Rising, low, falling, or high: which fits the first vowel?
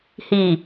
low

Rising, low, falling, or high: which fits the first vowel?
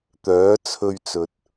rising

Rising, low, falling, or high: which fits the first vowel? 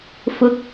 rising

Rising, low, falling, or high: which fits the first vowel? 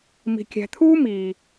low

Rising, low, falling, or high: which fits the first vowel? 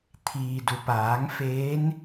low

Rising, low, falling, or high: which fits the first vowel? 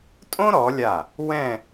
high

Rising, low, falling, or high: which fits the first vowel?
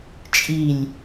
low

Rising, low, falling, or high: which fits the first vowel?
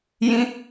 high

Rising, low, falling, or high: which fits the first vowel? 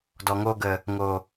low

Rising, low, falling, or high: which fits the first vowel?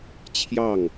falling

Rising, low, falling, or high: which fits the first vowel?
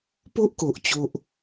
high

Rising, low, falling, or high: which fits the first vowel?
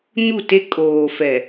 falling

